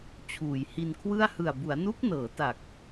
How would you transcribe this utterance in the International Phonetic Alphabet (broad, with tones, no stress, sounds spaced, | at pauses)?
t͡ɕʰ uː˨˩ j h i˧ n kʰ w ɯ˥˩ a̯ h ɯ˨˩ a̯ b u˩˦ a̯ n u˦˥ k̚ n ɤː˩˦ t a˨˩ k̚